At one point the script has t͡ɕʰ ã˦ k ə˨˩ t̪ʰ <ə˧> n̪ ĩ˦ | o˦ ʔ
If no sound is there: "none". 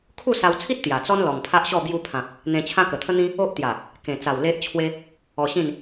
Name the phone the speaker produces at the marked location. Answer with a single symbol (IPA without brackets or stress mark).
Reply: ə˦